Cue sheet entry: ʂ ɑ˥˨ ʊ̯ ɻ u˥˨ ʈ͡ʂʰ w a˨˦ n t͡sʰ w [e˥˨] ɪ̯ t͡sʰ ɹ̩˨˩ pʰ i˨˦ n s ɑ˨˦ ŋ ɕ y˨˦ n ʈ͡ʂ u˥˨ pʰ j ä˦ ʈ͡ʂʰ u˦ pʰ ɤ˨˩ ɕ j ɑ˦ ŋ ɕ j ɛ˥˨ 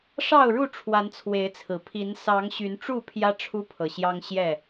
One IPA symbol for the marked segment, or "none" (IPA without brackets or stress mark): e˨˦